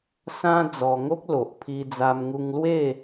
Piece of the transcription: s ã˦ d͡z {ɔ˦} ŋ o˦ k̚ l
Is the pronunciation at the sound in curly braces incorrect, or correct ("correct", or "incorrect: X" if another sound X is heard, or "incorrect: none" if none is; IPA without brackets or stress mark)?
incorrect: ɔ˧